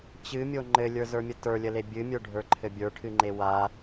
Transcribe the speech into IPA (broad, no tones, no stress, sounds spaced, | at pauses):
t͡ɕ ɨ mʲ o ŋ͡ǃ ɘ lʲ ə˞ z ə˞ mʲ ə t ə˞ lʲ ə l e bʲ ɨ mʲ ə˞ ɖʱ ə˞ ǃʰ ɘ bʲ ə˞ ʈʰ ɨ ŋ͡ǃ e w a